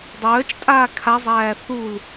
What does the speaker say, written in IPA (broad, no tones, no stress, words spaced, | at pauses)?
dˤœːt͡ʃtʼaː kʰazˤæː θul